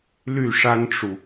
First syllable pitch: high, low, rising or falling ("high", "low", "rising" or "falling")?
falling